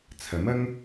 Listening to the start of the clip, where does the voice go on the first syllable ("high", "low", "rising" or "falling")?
rising